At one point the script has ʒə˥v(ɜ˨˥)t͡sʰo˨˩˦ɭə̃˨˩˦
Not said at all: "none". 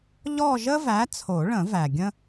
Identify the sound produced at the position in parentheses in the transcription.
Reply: æ˨˥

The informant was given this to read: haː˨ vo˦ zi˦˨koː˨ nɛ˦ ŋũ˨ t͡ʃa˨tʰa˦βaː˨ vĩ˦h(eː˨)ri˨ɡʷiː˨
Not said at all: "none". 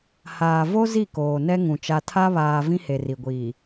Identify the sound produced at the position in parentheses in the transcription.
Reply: e˨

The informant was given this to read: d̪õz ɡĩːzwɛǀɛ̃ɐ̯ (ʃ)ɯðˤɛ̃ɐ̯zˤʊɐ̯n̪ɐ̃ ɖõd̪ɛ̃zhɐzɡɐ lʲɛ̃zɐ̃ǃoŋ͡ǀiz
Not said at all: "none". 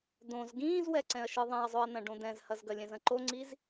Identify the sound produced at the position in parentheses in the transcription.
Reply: ʃ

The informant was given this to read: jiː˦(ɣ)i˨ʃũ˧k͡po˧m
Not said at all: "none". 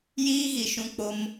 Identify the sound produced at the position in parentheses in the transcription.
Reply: ɣ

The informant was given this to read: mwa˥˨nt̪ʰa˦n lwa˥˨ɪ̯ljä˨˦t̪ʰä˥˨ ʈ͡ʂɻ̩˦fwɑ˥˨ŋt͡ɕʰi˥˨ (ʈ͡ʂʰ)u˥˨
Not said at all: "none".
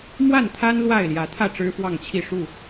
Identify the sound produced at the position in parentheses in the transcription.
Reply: ʂ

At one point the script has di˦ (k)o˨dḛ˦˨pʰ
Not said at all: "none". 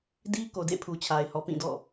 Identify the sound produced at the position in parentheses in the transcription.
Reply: k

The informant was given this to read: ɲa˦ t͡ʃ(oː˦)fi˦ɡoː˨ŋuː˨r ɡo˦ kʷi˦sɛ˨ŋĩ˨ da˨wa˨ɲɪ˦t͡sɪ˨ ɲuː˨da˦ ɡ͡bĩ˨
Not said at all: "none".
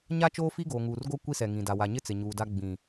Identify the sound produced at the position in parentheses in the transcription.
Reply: oː˦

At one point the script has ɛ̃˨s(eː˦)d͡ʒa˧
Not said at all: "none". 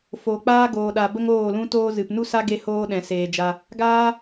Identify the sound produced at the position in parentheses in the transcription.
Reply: eː˨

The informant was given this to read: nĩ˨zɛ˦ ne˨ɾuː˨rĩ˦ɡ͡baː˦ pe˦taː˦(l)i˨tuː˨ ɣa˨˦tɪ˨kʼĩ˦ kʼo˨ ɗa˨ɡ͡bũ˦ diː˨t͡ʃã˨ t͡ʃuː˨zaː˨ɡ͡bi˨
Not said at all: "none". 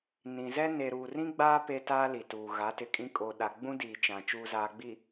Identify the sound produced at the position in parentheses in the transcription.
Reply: l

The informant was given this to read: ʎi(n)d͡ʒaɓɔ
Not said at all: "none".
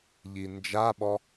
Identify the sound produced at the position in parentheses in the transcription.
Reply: n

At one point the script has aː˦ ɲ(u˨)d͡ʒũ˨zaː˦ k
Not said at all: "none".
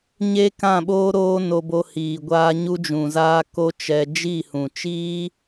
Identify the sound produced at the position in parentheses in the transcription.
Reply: u˦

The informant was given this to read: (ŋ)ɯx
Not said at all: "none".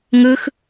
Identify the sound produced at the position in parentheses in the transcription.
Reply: ŋ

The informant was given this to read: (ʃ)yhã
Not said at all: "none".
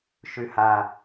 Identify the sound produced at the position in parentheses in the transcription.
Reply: ʃ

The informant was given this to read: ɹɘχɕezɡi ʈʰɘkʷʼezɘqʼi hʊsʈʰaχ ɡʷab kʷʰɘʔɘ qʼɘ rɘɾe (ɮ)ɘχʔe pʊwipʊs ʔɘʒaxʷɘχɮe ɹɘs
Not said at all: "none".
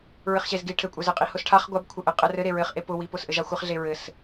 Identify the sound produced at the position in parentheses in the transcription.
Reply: ɹ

